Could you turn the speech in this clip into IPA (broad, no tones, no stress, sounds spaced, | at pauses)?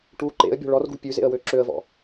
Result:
ʈ u ǃ ḛ ə̯ bʲ ɔ̤ ɭ ɔ r ɡ ṳ pʲ ʉ z ḛ ə̯ w ø ǁ ø ə̯ v ɔ̰